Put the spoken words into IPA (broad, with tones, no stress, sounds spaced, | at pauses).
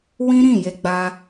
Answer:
w ĩ˦ ɾ ĩ˦˨ j e˧ ɡ͡b a˧